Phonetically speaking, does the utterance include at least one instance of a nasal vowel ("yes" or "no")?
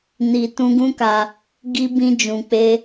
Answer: yes